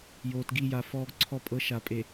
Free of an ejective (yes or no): no